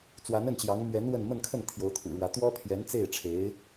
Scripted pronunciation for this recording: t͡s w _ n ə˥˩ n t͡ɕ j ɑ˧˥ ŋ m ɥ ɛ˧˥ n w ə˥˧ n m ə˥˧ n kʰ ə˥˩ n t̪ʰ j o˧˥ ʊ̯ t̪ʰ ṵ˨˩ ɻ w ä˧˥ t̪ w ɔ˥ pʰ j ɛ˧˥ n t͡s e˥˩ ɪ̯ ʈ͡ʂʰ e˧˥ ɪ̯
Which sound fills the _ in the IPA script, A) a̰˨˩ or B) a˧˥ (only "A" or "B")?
B